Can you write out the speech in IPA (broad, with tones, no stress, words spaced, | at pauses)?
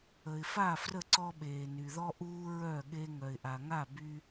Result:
ə˨ɪ̯fa˥˨ frə˥˨ǀɔ˦ɓeː˨ ny˨ ðɔ˦ʔuː˦ ɹœ˥˨ɠe˦ ŋœ˨ɪ̯ʔa˨ŋa˥˨ by˦